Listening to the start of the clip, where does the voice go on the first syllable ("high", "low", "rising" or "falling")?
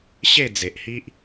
falling